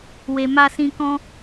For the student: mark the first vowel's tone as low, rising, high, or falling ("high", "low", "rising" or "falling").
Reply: low